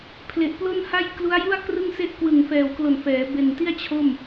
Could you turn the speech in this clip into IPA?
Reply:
pʰ l e˨˩ ʔ p l o˥˩ n h a˥˩ j k l u˦˥ a̯ j u˥˩ a̯ k r ɯ˥˩ ŋ s e˥˩ ʔ k w ɯ˨˩ ŋ f ɛː˨˩ w k l o˨˩ n f ɛː˩˦ b e˨˩ n t i˥˩ a̯ t͡ɕʰ o˥˩ m

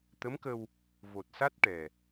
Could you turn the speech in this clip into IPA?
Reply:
t̪ ə˧˥ m k ə˧ w | v o˨˩ t̚ s a˦˥ t̚ ʈ ɛ˨˩

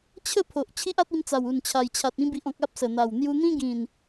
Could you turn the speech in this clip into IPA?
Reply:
t͡ɕʰ ə˥˧ pʰ o˨ ʔ t͡ɕʰ i˦ ʔ a˦ t̚ i˧ m t͡s a˨˩ w u˨˩ n t͡ɕʰ a˨˩ j t͡ɕʰ a˨ t̚ ĩ˧ b i˨ ʔ ɔ̃˨ k̚ a˦ p̚ s ə˨˩ n̪ a˨˩ w n̪ j u˧ n̪ ĩ˦ ɡ ĩ˨˩ n

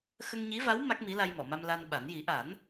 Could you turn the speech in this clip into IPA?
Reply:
x ə˧ ŋ ɲ i˧˥ v a˧˥ w m a˦˥ k̚ m i˧˥ l a˧ j m ɔ˨˩˨ m a˧ m l a˧ n ɓ a˨˩˦ n j i˨˩˦ ʔ a˨˩˦ n

